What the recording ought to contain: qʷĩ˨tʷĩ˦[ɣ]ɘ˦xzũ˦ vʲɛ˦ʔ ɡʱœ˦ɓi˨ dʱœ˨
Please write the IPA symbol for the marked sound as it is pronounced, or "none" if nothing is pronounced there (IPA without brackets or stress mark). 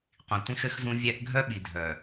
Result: x